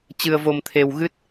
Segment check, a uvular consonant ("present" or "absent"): absent